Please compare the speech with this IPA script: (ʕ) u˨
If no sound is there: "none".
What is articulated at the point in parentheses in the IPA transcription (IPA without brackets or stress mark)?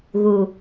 ɣ